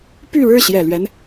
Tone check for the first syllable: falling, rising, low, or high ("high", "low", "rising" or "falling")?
falling